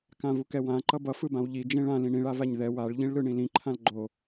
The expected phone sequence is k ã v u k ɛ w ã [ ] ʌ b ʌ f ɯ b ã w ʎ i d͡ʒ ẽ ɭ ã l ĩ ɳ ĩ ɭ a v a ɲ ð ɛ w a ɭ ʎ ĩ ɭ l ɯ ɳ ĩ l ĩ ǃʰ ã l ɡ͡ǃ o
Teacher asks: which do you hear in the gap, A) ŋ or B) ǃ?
B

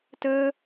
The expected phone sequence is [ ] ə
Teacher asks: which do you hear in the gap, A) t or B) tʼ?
A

